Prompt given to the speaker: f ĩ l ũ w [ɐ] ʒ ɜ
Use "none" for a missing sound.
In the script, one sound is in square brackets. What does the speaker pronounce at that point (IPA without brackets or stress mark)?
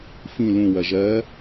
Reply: ɐ